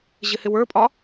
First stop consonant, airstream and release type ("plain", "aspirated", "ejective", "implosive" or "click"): ejective